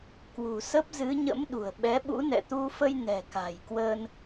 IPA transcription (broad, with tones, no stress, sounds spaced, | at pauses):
k w ṳ˨˩ s ə˦˥ p̚ z ɨ˨˦ ɲ ə̰˧˥ m ɗ ṳ˨˩ ə̯ ɓ ɛ˨˦ ɓ ṵ˧˥ n ɛ̰˧˨ t̪ u˧ f ə˧ j n ɛ̤˨˩ k a̤˨˩ j k w ə˧ n